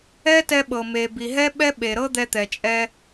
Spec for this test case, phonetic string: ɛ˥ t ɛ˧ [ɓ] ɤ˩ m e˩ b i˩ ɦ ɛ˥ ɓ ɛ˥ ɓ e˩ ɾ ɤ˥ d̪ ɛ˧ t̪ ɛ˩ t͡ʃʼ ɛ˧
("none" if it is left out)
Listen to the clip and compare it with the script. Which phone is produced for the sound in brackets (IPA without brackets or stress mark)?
ɓ